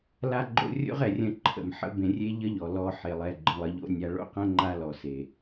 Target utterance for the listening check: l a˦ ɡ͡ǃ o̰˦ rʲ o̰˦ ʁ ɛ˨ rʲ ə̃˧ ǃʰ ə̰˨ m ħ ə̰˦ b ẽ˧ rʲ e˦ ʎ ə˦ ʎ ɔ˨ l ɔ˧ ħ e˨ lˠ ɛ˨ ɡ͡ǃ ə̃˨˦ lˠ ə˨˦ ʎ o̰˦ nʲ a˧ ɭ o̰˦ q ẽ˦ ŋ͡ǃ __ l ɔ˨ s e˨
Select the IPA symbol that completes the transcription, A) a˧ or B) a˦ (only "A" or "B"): B